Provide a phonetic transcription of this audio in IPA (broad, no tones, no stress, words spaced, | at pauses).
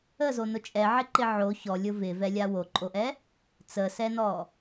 əzonʊ t͡ʃʼɛʕɪǃɪ ʕo çɔlʲʊ vɪvɛlʲa woǃʼoʔɛ | t͡səsɛnɔ